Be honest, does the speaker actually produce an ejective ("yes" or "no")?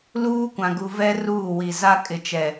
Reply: yes